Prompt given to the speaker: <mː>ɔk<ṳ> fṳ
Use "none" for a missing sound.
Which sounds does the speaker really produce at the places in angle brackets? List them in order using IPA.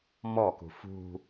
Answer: m, ṳ

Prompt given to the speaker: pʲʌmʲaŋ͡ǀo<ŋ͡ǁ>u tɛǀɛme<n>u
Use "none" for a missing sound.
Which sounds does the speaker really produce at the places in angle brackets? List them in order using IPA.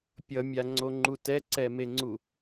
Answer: ŋ͡ǃ, ŋ͡ǀ

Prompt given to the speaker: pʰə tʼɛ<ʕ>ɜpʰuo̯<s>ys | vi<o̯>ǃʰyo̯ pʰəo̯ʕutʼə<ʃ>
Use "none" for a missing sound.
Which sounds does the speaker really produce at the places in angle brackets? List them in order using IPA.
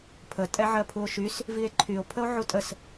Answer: ʕ, ʃ, e̯, s

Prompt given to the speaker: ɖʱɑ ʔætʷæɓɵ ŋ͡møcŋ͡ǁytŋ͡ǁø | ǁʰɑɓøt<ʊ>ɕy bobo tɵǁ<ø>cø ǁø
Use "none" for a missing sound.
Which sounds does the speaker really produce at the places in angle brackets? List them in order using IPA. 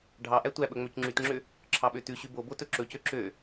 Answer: ʉ, ɵ

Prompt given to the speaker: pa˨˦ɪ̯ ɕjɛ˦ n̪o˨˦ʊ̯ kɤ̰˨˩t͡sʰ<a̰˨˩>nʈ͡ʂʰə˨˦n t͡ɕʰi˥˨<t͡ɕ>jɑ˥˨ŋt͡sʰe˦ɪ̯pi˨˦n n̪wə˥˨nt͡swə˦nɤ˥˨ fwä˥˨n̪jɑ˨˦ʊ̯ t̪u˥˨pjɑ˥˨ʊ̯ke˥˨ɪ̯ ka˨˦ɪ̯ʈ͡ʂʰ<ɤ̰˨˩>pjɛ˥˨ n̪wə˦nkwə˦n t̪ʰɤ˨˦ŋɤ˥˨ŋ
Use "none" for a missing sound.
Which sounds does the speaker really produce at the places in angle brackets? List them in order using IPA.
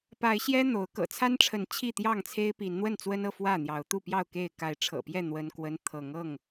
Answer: a˦, t̪, ɤ̰˨˩

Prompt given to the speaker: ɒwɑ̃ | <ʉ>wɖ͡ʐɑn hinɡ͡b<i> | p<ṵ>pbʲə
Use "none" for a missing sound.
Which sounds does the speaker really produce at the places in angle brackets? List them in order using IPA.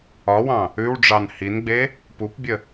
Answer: ʉ, e, u

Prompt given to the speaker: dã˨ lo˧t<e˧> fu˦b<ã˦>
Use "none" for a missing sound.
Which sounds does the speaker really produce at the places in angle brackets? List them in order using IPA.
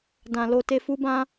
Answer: e˧, ã˦

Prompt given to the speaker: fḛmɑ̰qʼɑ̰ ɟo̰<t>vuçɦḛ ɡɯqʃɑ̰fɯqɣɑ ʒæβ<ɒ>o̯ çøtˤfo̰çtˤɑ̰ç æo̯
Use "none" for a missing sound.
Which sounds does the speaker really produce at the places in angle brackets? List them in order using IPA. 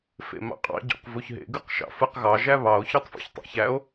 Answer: q, ɑ

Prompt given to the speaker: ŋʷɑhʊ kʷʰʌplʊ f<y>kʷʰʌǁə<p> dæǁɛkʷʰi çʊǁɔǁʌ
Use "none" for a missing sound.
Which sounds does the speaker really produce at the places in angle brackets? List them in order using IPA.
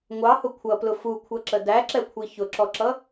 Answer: u, none

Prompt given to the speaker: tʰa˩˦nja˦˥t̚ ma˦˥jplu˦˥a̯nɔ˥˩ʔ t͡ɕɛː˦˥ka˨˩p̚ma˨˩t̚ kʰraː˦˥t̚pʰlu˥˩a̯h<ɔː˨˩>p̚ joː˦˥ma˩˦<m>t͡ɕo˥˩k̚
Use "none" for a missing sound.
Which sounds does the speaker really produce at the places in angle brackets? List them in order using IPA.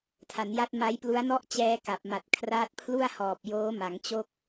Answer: ɔː˨˩, ŋ

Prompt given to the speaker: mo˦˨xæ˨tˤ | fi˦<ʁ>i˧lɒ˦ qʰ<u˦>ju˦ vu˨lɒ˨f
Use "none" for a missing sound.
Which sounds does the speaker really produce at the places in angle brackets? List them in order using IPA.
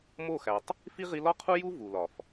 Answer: ʁ, u˦

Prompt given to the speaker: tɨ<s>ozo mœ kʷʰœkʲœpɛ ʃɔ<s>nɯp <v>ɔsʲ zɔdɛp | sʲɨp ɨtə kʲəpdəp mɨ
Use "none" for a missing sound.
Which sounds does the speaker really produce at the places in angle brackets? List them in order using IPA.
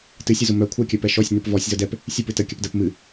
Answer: sʲ, sʲ, v

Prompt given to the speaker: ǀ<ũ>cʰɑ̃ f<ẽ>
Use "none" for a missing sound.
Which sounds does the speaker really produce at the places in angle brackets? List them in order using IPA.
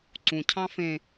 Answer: ũ, ẽ

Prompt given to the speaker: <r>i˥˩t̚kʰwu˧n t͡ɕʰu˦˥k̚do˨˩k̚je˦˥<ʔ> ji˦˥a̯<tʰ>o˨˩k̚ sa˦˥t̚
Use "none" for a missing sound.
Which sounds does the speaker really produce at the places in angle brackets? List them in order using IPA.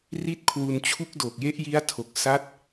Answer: r, ʔ, tʰ

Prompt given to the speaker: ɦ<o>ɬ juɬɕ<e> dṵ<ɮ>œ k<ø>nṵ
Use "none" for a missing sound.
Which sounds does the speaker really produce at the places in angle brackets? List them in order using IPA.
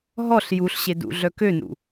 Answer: ɔ, e, ɮ, ø

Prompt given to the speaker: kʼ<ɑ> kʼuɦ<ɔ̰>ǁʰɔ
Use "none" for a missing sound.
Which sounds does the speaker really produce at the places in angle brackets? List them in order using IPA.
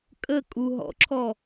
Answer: ə, ɔ̰

